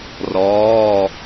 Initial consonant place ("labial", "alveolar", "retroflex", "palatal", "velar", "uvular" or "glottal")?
alveolar